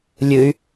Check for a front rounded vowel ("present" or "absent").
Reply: present